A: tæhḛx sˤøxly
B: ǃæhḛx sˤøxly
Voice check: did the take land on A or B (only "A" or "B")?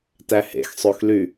A